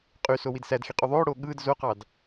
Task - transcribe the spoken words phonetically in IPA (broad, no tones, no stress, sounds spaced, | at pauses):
qʼ y s o w i d s æ d x i qʼ y ðˤ oː ɽ oː ɠ ɯː d z o q ɑ d